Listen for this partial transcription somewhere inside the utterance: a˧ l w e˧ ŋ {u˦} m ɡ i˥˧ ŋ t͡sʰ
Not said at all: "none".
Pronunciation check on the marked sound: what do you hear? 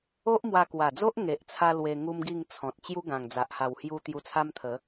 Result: u˦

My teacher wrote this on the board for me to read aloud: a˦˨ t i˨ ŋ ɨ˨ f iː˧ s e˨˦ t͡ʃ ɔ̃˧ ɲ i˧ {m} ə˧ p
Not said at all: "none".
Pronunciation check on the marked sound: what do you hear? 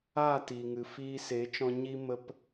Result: m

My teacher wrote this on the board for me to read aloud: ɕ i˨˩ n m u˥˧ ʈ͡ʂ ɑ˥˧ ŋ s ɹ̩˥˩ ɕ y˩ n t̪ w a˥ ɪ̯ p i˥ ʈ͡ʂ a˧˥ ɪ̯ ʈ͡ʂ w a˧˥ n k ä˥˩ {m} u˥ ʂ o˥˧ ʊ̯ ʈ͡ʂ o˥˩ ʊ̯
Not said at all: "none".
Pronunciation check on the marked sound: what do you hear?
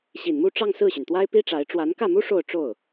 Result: m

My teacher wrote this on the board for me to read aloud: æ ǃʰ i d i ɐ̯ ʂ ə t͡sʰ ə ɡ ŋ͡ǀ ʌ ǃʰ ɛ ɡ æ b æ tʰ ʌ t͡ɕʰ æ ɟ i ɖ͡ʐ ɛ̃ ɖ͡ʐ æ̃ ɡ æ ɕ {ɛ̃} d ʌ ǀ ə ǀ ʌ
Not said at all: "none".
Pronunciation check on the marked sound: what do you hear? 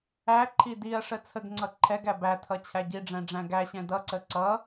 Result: ɛ̃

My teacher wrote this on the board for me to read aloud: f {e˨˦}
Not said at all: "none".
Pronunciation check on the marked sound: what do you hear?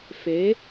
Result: e˨˦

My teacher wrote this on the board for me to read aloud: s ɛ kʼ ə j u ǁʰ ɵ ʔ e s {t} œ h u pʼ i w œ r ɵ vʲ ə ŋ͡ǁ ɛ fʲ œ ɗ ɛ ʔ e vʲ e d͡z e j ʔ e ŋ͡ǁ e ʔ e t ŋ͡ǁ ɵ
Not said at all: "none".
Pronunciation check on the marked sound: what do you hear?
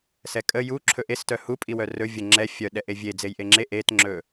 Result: t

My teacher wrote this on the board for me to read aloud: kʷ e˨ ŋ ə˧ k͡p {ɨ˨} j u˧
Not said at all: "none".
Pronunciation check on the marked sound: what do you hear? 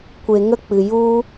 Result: ɨ˨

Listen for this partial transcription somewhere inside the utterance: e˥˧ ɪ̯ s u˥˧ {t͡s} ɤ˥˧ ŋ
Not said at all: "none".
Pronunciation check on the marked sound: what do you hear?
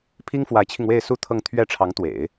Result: t̪ʰ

